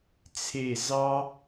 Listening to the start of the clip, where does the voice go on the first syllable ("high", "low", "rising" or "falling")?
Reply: falling